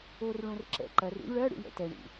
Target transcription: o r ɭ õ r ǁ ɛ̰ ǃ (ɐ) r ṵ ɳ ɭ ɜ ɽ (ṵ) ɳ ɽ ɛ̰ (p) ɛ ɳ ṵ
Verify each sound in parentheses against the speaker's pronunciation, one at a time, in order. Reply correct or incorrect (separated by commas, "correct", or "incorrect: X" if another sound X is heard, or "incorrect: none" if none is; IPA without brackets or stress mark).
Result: correct, correct, incorrect: t